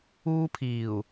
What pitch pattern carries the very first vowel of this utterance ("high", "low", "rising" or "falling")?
high